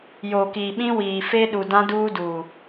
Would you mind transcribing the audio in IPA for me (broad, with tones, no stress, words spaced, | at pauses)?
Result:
jo˨ki˨ɓĩ˦wiː˨ fe˦ɗu˨dã˦ duː˦duː˨